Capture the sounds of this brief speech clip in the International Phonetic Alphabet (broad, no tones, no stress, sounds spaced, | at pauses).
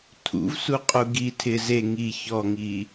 tʰ ṵ v s u qʼ u ɡ i tʰ ɪ z e ŋ i ç ɔ ŋ iː